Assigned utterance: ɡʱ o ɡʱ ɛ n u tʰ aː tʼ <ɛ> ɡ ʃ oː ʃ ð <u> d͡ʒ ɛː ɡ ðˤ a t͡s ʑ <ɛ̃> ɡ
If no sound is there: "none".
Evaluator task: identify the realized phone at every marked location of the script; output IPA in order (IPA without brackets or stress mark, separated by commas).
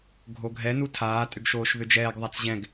ʏ, ʏ, ɛ̃